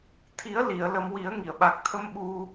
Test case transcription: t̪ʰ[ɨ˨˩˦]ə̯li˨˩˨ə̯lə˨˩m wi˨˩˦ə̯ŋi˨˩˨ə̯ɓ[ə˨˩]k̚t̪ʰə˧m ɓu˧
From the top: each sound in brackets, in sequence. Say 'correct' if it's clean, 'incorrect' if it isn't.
incorrect: i˨˩˦, incorrect: a˨˩

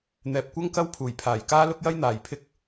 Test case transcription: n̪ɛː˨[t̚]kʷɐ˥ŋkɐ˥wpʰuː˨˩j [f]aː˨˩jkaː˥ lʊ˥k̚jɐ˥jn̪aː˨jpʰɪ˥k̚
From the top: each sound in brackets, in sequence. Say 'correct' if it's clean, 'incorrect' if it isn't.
incorrect: p̚, incorrect: pʰ

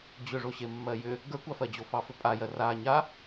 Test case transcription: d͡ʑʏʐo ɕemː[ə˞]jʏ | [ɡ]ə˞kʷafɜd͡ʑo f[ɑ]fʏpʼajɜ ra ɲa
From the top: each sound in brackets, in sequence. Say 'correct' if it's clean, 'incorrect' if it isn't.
incorrect: ɜ, correct, correct

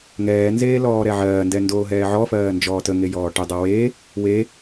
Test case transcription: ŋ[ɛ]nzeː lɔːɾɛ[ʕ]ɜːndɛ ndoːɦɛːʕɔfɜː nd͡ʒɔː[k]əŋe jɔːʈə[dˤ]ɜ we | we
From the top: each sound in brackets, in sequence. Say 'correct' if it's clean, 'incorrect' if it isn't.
incorrect: ɛː, correct, incorrect: t, correct

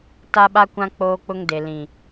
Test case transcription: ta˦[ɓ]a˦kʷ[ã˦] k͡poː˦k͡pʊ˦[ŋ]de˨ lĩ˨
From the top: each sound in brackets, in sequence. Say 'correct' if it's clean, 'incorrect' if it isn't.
correct, correct, correct

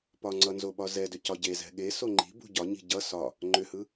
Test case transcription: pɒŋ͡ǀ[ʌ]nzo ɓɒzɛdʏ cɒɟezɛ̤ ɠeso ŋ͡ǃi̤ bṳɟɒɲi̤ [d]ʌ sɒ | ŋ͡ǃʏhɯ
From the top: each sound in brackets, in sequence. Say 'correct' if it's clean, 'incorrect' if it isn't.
correct, incorrect: ɟ

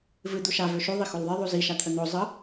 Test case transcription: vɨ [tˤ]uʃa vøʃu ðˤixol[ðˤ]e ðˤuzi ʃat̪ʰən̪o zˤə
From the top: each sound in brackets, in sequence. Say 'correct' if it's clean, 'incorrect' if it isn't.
incorrect: d̪, correct

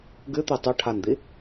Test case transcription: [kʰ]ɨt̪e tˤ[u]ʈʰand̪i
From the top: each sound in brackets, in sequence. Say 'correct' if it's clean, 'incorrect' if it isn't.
incorrect: ɡ, correct

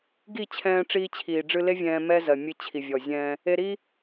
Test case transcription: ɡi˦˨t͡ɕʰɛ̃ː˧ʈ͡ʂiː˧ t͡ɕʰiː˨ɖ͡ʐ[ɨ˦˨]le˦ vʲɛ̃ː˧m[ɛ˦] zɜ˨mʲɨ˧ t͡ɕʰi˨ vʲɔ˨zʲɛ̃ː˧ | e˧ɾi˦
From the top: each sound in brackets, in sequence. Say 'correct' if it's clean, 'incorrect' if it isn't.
incorrect: ɨ˧, correct

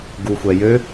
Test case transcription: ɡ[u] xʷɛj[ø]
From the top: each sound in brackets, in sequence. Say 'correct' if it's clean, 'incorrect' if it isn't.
correct, correct

